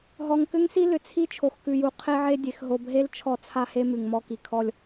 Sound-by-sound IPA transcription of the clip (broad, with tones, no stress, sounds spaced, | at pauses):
ɦ ɔ˨ ŋ k ʏ˦ ŋ s i˦ l ʏ˨ t͡sʰ i˦ t͡ʃʰ o˨ x k ʉ˨ j u˨ qʰ e˦ ʕ e˦ dʲ e˨ x ɦ o˨ b ɦ e˦ l t͡ʃʰ ɔ˦ t͡sʰ a˦ h e˦ m ʉ˨ ŋ m ɔ˦ k i˨ kʰ ɔ˦ lʲ